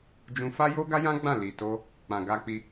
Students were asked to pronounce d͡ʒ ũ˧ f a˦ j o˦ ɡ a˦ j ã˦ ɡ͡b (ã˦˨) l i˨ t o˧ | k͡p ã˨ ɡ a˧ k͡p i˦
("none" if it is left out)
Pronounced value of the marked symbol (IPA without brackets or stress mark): ã˦˨